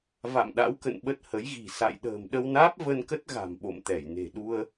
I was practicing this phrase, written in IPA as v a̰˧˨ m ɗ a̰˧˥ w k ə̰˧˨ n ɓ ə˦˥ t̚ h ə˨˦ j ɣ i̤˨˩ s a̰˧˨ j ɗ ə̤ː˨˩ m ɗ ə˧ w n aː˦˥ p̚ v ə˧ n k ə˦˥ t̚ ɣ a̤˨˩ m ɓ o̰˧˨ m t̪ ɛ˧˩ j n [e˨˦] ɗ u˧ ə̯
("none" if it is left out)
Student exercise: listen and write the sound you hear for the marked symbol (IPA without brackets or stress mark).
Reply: e̤˨˩